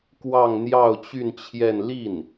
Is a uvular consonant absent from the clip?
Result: yes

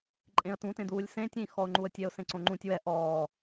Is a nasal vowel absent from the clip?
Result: no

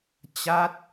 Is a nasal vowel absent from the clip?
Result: yes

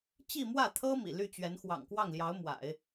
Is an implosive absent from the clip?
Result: yes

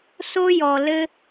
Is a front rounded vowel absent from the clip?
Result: yes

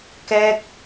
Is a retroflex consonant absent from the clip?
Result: yes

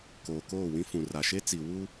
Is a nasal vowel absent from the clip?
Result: no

